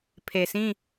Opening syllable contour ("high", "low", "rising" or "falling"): low